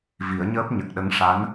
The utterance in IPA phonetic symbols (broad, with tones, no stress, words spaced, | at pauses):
vi˨˩˦ə̯ɲəː˦˥p̚ ɲə˨˩k̚ɗə˧˥ŋ ʂa˧˥n